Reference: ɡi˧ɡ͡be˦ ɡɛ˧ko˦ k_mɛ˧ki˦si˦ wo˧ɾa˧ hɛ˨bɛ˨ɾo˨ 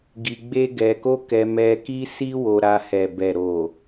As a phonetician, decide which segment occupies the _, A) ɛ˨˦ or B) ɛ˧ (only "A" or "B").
B